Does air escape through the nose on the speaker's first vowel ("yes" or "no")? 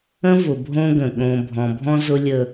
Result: yes